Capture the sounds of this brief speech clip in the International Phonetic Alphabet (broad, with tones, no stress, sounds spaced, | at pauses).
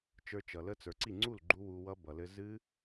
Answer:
t͡ʃ ə˞˧ t͡ʃ ʌ˩ l ə˦˥ t͡s ə˞˩ ǀ i˥˩ ŋ͡ǀ u˥˩ l ɡ͡ǃ u˦˥ w u˧ w ʌ˦˥ b ʌ˩ l ɘ˧ z ɨ˦˥